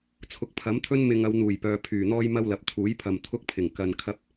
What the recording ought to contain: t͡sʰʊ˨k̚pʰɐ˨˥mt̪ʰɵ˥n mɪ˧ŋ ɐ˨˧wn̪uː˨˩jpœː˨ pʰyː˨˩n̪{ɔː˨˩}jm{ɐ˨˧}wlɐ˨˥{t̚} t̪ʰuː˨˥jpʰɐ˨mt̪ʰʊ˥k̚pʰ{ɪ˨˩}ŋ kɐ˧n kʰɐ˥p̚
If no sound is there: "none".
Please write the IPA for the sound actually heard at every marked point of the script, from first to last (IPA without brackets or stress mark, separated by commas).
ɔː˥, ɐ˥, p̚, ɪ˨˩